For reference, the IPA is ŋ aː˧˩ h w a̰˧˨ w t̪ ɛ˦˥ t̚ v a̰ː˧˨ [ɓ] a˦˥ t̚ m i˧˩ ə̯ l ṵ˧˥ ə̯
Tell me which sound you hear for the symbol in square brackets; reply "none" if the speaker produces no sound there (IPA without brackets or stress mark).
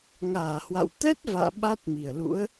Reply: ɓ